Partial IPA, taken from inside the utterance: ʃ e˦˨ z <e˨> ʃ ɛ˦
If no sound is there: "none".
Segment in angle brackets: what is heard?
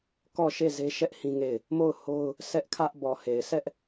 e˦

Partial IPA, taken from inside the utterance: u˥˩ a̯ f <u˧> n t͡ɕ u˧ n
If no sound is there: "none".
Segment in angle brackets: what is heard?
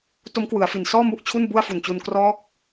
u˨˩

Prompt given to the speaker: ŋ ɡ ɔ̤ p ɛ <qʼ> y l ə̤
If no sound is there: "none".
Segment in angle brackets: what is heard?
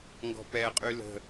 qʼ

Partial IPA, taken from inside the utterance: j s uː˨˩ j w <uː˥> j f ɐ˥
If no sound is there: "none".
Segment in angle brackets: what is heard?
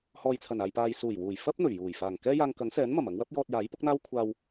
uː˨˩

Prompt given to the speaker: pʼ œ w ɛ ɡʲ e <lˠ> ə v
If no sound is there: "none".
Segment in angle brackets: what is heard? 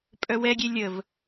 lʲ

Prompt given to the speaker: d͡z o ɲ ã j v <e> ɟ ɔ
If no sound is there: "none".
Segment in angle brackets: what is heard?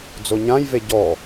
e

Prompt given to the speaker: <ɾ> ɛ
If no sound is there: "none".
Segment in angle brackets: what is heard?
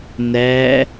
n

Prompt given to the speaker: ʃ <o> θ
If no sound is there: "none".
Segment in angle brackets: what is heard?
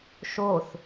o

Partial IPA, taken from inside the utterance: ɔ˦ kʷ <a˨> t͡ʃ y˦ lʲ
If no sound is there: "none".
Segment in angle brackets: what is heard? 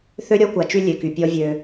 a˨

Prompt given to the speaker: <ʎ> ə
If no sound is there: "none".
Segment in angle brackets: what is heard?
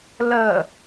l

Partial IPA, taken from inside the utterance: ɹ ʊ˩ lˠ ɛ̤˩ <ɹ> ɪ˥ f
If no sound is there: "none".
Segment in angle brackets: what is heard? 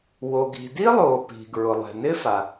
n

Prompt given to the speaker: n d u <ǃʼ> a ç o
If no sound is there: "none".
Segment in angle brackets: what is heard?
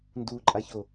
ǃʼ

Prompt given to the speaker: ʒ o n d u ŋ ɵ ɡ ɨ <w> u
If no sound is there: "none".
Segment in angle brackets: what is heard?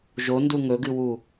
w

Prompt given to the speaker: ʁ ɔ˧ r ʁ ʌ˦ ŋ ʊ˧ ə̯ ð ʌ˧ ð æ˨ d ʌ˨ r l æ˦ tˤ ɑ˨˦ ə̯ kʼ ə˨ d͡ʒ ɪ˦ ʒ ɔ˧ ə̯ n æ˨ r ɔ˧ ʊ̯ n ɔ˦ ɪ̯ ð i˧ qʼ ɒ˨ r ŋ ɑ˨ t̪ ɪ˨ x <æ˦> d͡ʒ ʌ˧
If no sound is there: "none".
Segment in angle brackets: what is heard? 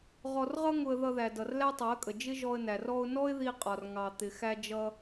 æ˧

